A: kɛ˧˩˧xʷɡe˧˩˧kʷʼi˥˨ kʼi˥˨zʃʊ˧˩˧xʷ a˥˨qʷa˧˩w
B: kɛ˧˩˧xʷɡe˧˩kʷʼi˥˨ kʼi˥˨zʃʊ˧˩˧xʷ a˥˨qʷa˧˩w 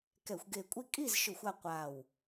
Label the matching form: B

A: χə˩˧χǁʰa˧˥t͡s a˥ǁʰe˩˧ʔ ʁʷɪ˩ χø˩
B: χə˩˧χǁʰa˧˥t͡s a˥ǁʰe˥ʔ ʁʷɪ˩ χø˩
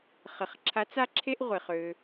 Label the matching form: B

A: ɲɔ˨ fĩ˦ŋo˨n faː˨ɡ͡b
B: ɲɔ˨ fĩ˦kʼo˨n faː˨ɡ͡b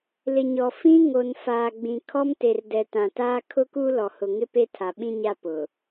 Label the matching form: A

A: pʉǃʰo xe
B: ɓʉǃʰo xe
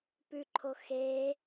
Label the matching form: A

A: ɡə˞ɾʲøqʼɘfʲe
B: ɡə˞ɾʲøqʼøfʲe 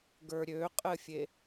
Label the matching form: A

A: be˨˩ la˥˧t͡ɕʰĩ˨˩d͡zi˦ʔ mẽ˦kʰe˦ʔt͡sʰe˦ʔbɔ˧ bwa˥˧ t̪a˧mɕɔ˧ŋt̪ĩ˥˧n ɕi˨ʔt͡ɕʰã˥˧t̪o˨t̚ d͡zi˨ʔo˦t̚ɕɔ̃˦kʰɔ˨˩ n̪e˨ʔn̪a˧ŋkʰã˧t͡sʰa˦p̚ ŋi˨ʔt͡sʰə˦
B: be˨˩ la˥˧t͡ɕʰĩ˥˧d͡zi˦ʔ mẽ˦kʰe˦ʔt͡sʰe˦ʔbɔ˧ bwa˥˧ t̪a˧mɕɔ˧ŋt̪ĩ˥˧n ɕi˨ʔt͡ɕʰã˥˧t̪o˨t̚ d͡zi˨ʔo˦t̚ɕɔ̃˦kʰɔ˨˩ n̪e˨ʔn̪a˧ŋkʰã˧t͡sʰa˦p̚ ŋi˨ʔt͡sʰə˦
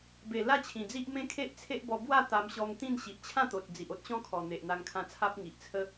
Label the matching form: A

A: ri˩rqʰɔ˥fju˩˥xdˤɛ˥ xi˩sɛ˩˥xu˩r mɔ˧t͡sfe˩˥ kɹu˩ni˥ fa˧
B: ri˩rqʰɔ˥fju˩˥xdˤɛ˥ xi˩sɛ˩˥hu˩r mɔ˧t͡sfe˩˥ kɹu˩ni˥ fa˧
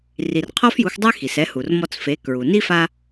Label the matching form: B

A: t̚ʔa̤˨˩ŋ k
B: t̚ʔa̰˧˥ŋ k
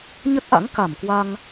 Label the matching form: B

